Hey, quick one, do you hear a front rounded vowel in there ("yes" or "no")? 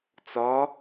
no